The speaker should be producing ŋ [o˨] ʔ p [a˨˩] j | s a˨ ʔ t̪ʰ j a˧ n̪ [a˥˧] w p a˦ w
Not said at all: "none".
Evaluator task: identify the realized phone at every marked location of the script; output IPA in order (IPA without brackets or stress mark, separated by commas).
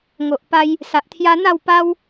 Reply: o˨, a˧, a˥˧